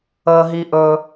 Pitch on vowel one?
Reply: low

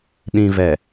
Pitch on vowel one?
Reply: low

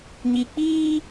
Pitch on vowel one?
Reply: low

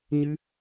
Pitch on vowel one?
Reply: high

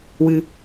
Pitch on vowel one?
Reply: low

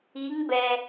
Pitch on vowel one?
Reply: rising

